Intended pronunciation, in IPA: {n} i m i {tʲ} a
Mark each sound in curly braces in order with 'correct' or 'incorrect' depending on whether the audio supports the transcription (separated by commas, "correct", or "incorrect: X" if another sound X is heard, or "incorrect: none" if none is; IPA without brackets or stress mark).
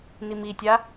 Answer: correct, correct